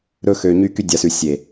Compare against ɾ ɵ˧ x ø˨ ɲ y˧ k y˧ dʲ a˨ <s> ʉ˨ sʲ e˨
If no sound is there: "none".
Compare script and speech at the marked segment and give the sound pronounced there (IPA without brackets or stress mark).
s